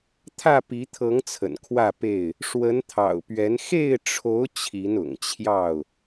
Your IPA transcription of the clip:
t̪ʰä˥˨pi˨˦t̪ʰɤ˨˦ŋ t͡sʰə̰˨˩nkʰwä˥˨pe˥˨ɪ̯ | ʂwə˨˦nt̪ʰɑ̰˨˩ʊ̯pɥɛ˨˦n xe˥˨ɪ̯ʈ͡ʂʰo˨˦ʊ̯ t͡ɕʰi˨˦nʊ̰˨˩ŋt͡ɕʰjɑ˥˨ʊ̯

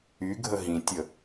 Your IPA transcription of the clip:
yɡʱə ɦĩtʲə

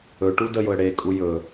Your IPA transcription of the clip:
ɵʈu dəjʊə̯ ɽekʼu jɵ

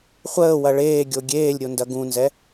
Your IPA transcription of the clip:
χʷəːwɐ ɭeːɡʲo ɡʲeːlʲɾʲo ndɐɡũnzɛ

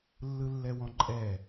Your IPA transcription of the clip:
lːɯlːɛwɔ̃ǃʼɛ

